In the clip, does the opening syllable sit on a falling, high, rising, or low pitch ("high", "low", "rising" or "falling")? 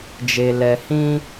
low